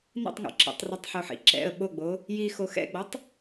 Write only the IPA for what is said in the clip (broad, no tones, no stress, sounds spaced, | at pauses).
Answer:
n ḭ tˤ ŋ o̰ ǁ ɛ̰ tˤ r ɛ tˤ ħ o ħ ḭ ǁ ɛ̰ ə̯ ɓ o ɡ͡b o | j i x o x ɛ̰ ɡ͡b ɔ tˤ